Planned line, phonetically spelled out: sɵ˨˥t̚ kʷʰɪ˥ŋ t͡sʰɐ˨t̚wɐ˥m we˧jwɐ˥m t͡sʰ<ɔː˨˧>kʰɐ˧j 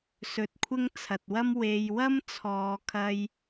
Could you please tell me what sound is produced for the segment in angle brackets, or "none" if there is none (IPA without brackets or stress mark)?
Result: ɔː˨˧